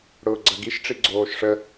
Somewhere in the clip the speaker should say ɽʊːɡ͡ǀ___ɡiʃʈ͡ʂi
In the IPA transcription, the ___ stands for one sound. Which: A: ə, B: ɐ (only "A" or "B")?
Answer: B